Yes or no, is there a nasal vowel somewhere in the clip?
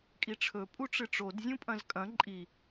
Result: yes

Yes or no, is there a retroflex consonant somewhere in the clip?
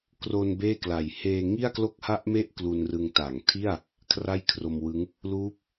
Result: no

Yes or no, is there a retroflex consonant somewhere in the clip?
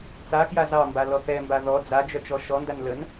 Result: no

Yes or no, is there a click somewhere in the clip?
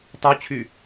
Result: no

